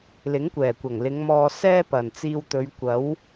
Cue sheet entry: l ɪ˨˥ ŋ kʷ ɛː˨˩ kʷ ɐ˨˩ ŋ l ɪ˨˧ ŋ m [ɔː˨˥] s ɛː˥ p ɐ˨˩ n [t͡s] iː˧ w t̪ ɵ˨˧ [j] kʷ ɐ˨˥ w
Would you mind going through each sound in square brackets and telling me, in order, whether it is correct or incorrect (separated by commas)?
incorrect, correct, incorrect